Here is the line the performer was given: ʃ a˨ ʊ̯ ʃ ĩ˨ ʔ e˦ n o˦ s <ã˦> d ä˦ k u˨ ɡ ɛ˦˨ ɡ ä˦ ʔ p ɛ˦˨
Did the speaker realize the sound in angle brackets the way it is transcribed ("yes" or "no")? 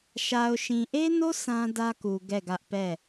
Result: yes